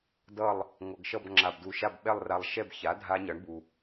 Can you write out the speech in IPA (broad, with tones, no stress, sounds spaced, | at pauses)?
d ʌ˦˨ lˠ | ŋʷ ʌ˨ ɡ ʃ ʌ˦˨ b ŋ͡ǁ a˨ b d u˨ ʃ a˦˨ b ɓ ɛ˦˨ lˠ r a˨ lˠ ʃ ɛ˦˨ b ç a˩˥ dʱ a˦˥ ɲ ʌ˩˥ ɳ b u˨